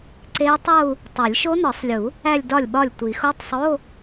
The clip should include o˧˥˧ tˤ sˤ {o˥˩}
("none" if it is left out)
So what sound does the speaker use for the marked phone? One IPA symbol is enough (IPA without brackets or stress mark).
o˧˥˧